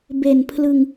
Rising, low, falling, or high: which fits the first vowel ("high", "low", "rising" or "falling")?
low